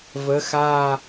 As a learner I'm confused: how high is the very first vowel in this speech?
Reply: mid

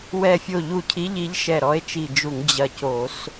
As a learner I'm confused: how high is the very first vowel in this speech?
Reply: mid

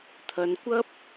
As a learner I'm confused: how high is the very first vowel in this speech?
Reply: low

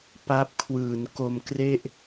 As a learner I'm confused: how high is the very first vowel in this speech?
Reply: low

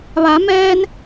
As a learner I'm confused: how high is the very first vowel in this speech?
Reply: low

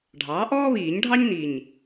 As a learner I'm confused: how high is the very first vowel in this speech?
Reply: low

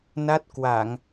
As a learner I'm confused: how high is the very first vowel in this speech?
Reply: low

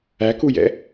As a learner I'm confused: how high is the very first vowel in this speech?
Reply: low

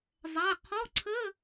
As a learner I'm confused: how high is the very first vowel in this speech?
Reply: low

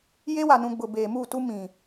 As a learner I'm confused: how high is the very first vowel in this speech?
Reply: mid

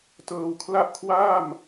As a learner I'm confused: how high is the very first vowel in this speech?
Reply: mid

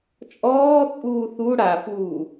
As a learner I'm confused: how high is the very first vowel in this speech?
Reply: mid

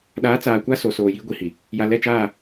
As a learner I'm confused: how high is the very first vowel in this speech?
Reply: low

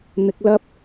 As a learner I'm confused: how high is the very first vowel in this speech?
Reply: high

